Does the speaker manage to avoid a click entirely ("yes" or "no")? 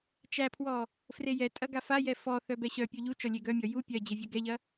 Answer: yes